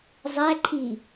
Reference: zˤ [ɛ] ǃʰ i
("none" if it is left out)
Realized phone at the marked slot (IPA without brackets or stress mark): æ